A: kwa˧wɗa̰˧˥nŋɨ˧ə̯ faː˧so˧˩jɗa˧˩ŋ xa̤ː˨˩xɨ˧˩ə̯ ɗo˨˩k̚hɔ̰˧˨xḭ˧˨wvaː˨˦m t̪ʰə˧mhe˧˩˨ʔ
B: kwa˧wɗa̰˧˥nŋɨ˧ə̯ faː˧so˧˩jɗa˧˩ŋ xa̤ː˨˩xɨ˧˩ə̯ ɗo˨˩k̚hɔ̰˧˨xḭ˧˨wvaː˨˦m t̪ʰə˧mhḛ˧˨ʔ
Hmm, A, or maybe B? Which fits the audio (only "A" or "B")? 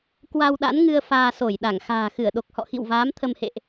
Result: B